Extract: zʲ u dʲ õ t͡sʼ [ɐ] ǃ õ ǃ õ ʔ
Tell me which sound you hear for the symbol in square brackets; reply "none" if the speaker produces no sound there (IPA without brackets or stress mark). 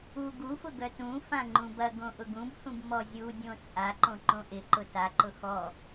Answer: a